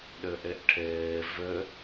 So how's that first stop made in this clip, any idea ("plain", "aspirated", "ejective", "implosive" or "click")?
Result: implosive